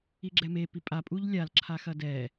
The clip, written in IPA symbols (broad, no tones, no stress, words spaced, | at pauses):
iɡ͡ǁɛme pipʼapʼuʎ lʲalǁʰaxɐ dɛ